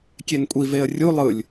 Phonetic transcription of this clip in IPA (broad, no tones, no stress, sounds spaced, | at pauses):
kʲ e n kʷʼ i v e ə̯ rʲ u lˠ ɯ lʲ